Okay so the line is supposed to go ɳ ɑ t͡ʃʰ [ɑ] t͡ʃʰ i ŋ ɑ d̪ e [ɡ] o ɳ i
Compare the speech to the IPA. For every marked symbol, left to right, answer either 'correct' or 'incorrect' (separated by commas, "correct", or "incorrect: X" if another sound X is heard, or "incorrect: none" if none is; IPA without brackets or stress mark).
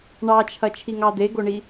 incorrect: ɐ, correct